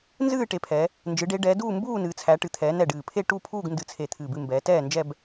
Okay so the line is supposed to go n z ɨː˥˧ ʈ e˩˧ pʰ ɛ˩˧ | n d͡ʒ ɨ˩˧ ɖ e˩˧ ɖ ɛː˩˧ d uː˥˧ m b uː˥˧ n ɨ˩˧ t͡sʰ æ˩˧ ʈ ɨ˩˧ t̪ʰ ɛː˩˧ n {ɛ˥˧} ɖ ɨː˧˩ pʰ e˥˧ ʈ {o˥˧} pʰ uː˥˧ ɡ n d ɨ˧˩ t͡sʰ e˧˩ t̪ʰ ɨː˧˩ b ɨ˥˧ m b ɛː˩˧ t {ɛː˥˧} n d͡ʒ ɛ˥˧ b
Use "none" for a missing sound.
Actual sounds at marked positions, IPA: ɛ˧˩, u˥˧, ɛː˥˧

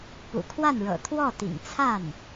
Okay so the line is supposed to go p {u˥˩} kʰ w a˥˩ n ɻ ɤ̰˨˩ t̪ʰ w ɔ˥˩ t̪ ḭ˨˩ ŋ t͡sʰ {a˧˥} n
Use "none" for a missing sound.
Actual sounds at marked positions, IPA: ṵ˨˩, a˥˩

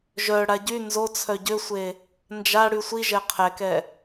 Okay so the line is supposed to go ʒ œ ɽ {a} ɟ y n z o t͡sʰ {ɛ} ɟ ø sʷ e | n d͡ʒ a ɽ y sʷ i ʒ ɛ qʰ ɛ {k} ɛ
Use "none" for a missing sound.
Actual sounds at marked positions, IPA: a, œ, k

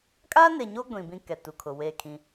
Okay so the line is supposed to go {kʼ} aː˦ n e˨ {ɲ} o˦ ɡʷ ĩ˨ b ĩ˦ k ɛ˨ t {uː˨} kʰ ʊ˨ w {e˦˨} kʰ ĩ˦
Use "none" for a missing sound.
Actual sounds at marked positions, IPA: kʼ, ɲ, u˨, e˦˨

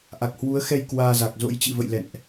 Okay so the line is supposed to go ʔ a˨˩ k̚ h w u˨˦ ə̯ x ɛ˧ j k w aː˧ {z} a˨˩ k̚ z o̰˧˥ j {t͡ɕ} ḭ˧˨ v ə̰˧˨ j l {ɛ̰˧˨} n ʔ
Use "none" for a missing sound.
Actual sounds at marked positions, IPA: z, t͡ɕ, ɛ̰˧˨

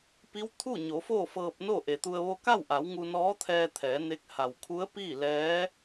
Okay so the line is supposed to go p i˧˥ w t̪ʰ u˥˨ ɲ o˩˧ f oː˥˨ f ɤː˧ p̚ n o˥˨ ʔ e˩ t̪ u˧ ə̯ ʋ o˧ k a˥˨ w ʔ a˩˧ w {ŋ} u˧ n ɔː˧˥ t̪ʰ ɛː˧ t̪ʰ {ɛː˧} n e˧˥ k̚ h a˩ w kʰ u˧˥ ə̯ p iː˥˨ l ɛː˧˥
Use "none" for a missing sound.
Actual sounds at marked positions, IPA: ŋ, ɛː˩˧

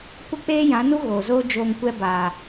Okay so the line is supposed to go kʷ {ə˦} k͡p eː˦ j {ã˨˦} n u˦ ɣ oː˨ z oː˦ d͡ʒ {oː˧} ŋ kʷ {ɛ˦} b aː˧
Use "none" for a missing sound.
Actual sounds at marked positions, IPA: ə˦, ã˨˦, oː˧, ɛ˦

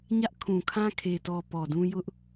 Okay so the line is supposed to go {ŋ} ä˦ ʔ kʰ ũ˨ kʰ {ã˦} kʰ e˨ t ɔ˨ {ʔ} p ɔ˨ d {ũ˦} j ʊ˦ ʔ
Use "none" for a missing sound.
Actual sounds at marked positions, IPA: ɲ, ã˦, none, ũ˦

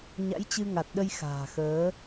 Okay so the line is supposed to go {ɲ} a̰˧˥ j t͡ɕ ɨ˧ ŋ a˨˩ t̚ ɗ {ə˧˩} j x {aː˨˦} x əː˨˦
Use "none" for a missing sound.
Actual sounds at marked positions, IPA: ɲ, ə˧, a̤ː˨˩

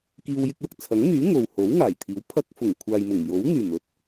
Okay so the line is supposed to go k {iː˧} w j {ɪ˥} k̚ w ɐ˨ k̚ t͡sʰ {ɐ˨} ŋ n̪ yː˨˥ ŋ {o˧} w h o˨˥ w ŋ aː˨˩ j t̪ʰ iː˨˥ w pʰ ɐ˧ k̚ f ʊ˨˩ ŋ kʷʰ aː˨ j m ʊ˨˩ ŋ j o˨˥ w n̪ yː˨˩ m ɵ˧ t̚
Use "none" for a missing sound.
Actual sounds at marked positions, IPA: iː˧, ɪ˧, ɐ˨˥, o˨

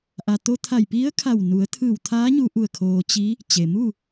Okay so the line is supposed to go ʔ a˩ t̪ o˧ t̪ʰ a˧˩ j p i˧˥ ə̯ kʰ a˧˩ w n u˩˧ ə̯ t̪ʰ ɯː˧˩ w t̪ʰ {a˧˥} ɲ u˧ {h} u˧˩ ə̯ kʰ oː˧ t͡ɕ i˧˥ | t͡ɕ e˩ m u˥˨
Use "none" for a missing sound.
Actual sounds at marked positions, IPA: aː˧˥, ʔ

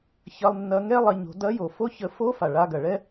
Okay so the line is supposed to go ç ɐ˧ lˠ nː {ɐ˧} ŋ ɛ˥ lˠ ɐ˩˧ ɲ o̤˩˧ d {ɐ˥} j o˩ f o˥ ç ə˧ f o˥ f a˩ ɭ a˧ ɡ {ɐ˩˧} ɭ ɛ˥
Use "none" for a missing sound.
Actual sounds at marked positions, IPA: ɐ˧, ɐ˧˥, ɐ˩

